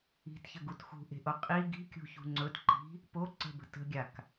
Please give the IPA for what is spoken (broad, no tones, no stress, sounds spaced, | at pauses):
i̤ t ç ə ɡ u t x ṳ ʔ e̤ ʔ o qʼ i ɡ i̤ kʲ ṳ ç ṳ ŋ͡ǀ ɵ t ǃ i̤ | p o ǀ ə̤ b ə̤ t ə̤ ɡʲ a k